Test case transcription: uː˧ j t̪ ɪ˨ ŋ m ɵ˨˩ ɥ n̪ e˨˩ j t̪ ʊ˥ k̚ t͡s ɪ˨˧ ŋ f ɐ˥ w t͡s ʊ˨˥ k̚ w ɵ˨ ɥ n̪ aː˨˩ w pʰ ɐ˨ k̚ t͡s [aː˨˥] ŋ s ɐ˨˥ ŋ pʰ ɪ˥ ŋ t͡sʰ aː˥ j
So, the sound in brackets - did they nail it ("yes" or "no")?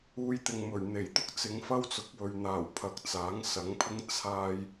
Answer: yes